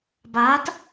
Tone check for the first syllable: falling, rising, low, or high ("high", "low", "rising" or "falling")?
rising